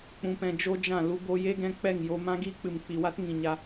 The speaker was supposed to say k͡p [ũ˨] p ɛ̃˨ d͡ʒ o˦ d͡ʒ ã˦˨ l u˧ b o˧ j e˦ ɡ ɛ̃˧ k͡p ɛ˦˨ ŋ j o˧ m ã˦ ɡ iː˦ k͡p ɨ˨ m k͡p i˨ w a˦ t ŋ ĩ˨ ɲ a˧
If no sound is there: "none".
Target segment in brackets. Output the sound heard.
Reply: ũ˨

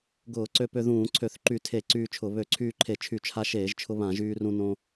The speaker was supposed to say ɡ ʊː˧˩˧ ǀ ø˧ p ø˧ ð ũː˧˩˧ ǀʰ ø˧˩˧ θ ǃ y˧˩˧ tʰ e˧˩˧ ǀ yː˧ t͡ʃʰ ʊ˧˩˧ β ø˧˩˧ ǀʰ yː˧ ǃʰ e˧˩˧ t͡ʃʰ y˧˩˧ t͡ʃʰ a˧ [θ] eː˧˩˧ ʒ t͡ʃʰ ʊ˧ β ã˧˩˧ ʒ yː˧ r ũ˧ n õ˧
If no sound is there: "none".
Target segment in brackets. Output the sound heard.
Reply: ʃ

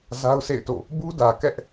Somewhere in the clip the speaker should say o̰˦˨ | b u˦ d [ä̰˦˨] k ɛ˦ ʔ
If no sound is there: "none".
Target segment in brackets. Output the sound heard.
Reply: ä˨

